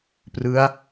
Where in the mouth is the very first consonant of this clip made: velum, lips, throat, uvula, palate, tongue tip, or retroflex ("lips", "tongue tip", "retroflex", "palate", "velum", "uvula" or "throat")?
lips